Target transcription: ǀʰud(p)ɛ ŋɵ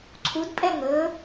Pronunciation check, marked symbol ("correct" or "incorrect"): incorrect